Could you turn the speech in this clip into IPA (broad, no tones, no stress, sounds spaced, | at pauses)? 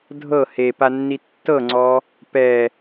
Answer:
dʱ ɤ h e p a nː i tː ɤ ŋ͡ǀ ɔ | p ɛ